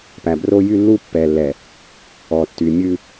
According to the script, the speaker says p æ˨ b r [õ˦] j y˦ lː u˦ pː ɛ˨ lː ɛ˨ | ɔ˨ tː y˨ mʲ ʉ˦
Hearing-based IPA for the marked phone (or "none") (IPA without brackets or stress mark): o˦